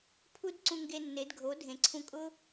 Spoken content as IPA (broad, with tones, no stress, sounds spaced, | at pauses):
pʰ u˥ d ǀ ũ˧ ŋ ɡ e˧ nː e˩˥ d ɡʱ o˩˥ dʱ ẽ˩ ǀʰ ũ˧ kʼ ʊː˥